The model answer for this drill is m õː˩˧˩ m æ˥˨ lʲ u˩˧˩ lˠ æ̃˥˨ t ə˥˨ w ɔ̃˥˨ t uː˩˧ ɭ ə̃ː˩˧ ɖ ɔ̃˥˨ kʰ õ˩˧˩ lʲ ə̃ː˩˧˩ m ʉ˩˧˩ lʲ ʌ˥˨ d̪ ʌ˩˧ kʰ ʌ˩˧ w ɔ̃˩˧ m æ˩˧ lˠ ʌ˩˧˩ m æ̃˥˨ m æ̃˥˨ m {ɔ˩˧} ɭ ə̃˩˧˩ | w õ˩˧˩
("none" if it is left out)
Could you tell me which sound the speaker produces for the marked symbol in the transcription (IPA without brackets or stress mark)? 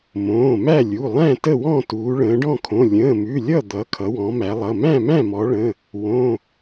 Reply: ɔ˩˧